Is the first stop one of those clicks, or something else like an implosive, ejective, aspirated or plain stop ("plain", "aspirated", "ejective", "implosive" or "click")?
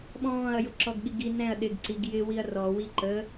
implosive